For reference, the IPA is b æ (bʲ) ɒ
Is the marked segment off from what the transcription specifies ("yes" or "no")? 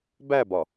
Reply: yes